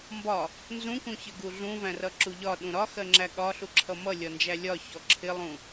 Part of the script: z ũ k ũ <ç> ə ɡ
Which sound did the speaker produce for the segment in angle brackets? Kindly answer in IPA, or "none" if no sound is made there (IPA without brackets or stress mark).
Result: ç